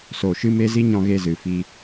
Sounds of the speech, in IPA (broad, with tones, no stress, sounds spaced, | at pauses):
s o˨ ʃ ɨ˧ m e˧ z i˦ ɲ ɔ̃˧ ɣ e˧ z ɨ˨ f i˧